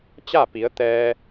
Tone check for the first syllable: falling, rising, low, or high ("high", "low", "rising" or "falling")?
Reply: falling